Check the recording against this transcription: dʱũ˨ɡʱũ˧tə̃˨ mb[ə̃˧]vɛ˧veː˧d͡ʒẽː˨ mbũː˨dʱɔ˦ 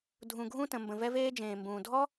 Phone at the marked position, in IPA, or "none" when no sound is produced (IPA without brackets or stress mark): ə̃˨